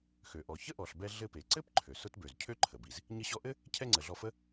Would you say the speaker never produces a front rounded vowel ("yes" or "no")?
no